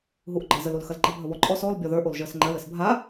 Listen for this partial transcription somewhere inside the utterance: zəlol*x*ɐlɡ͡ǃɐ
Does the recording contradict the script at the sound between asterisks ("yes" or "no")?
no